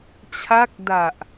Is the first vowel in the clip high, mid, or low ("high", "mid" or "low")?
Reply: low